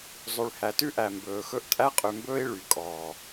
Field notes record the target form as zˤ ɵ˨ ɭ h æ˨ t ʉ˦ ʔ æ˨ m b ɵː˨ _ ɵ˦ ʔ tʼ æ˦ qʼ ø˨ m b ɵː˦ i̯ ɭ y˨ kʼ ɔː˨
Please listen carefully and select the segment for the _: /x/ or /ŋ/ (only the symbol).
x